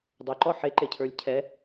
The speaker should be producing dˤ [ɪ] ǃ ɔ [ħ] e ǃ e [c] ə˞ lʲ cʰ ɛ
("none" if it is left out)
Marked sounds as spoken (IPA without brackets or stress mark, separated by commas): ɛ, ħ, cʰ